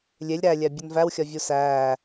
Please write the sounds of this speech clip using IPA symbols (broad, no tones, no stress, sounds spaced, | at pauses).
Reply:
lʲ e lʲ ɾ æ lʲ æ bʲ u n v æ w xʲ ɒ vʲ u s æː